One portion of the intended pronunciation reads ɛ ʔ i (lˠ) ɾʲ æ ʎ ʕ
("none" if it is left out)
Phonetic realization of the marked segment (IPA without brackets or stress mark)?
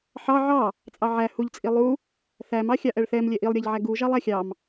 lˠ